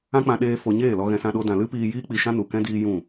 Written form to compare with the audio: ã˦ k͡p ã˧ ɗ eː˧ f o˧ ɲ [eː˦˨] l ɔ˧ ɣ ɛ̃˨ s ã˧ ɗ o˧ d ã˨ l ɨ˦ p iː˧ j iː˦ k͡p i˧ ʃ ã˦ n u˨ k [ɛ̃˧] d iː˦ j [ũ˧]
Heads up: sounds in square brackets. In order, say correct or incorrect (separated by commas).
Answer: correct, incorrect, incorrect